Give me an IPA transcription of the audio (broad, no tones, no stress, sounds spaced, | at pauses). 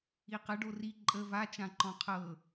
i q ə ɖ o r i ǃʼ ə v a t͡ʃ ã ǃ ɔ̃ qʰ ɤ